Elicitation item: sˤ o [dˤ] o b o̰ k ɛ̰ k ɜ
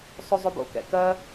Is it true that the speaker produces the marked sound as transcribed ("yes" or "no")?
no